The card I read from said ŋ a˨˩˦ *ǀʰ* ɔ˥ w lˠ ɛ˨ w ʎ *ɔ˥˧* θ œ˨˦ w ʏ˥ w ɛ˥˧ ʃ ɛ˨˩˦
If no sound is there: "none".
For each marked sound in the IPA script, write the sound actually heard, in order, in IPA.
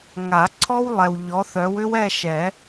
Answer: ǀʰ, ɔ˨˦

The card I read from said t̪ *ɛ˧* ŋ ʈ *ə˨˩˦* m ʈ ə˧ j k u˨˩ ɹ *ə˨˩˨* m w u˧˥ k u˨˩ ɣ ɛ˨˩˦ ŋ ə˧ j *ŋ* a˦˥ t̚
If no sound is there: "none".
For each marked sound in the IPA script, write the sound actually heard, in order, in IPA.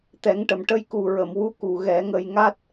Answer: ɛ˨˩˦, ə˨˩˨, ə˨˩˨, ŋ

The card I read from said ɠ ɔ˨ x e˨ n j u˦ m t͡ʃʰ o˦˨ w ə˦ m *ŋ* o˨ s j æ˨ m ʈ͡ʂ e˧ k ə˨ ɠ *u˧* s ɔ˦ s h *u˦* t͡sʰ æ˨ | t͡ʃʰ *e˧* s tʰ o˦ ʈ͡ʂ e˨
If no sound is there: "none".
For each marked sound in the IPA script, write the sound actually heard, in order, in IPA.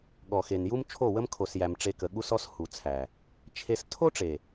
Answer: kʰ, u˦, u˨, e˧

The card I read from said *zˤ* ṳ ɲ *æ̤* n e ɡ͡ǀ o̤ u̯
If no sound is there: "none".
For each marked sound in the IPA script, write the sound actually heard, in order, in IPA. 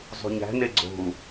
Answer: zˤ, æ̤

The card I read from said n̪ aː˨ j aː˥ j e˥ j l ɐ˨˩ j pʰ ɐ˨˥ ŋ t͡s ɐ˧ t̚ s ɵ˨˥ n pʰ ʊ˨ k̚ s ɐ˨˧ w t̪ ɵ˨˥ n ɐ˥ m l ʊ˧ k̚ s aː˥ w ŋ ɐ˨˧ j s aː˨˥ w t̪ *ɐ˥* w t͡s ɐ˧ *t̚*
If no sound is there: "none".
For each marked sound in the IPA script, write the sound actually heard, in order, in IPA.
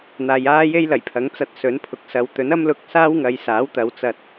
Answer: ɐ˨˧, t̚

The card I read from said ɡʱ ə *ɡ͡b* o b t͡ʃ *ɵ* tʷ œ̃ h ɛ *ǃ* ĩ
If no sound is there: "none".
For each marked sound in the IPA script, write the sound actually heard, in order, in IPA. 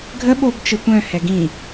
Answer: ɓ, ə, ɡ

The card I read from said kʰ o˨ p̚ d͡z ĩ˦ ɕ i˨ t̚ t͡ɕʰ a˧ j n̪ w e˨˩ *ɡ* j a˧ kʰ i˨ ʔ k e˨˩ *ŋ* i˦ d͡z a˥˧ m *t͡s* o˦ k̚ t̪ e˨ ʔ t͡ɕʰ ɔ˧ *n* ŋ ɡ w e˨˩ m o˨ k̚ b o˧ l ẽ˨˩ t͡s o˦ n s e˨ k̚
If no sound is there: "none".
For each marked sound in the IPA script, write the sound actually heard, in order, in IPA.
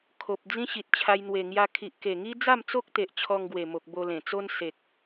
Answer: ŋ, ŋ, t͡s, none

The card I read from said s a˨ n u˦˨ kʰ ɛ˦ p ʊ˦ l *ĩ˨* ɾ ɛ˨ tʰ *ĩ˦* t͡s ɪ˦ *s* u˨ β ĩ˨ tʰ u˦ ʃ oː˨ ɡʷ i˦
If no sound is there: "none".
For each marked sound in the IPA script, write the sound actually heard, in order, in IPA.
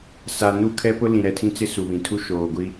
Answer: ĩ˨, ĩ˦, s

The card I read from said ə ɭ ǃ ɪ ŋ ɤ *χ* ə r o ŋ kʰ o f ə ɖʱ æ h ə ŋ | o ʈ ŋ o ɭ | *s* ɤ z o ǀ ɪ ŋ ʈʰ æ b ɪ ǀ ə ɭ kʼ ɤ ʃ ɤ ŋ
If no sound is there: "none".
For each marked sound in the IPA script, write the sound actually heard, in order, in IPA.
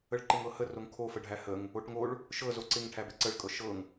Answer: h, ʃ

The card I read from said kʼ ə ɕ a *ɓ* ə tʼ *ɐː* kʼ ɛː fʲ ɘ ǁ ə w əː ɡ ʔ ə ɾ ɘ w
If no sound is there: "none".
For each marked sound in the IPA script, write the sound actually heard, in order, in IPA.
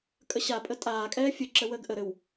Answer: pʼ, aː

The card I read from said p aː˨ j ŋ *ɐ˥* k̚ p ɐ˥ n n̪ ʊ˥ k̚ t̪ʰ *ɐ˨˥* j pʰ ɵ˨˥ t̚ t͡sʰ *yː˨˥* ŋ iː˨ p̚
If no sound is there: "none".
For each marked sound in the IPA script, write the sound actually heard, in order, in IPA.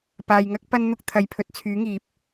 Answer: ɐ˥, ɐ˨, yː˨˥

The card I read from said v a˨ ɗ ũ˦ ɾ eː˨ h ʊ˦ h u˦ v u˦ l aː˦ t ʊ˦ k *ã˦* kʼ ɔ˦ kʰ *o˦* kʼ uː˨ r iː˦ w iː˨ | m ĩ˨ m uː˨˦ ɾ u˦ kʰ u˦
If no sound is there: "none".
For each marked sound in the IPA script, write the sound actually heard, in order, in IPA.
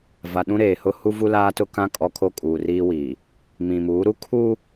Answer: ã˦, o˦

